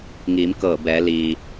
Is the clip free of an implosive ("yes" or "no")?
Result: yes